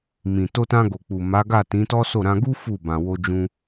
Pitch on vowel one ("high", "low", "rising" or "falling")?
low